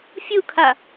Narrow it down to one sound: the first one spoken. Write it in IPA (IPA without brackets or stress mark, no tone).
fʲ